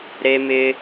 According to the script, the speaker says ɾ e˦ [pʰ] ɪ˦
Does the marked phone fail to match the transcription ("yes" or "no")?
yes